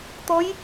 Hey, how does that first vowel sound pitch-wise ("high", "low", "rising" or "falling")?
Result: rising